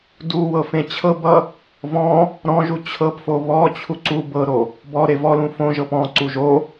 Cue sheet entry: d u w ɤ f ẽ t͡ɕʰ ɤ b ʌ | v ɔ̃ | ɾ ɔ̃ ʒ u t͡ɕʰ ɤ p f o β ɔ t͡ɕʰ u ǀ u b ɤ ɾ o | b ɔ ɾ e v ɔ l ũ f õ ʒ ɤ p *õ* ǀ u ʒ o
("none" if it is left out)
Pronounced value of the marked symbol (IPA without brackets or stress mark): ɔ̃